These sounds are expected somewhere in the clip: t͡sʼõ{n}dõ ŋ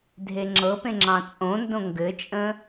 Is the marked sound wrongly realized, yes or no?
no